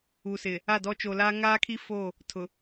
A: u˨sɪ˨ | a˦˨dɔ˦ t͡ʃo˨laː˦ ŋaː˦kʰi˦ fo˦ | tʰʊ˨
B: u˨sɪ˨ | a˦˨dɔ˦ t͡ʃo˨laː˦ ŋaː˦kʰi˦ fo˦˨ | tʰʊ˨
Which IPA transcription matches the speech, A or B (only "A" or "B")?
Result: B